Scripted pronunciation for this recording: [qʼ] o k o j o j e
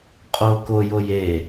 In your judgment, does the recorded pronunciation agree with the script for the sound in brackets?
yes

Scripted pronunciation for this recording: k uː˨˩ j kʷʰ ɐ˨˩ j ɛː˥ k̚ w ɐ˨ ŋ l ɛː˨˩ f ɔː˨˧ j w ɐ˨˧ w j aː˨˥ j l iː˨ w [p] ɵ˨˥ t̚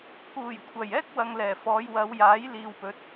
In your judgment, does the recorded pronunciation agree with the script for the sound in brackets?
yes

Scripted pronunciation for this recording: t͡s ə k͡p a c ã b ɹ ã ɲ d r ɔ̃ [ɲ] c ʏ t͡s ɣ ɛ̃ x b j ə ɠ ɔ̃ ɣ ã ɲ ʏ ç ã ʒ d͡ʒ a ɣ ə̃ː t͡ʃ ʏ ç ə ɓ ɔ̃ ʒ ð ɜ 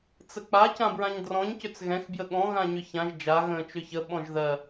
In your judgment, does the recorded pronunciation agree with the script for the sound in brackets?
yes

